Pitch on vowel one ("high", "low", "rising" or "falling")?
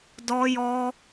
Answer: high